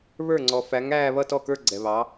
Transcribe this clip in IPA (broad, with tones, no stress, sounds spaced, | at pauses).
β ə˞˥˩ ŋ͡ǀ ɔ˨ f æ˨˥ ŋ æː˥˧ β ʌ˥˧ t ɔ˥˩ k ə˞˥˧ ɡ͡ǀ ɛ˨ β ɑ˨˥